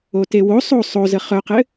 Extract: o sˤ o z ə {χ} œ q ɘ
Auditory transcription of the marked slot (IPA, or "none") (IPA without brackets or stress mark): χ